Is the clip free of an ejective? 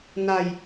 yes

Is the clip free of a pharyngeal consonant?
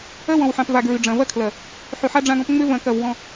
no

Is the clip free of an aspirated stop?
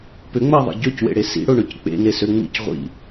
yes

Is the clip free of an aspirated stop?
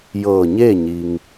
yes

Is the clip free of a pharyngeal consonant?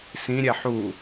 no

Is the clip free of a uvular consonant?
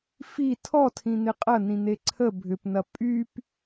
no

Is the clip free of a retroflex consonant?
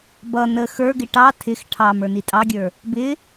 no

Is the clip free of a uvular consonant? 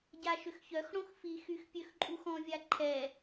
yes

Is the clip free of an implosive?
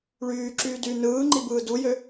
yes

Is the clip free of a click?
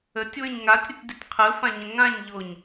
yes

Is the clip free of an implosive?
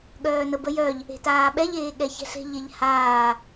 no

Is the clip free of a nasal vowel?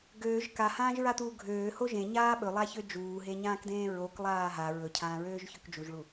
no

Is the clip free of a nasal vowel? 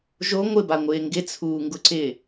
yes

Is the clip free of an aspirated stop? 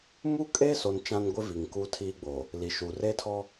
no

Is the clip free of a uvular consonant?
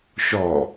yes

